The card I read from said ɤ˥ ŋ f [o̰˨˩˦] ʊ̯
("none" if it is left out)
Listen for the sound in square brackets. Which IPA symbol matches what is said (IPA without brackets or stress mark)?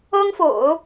o̰˨˩˦